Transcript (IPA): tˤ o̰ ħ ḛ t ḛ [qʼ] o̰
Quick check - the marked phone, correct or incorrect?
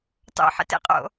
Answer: correct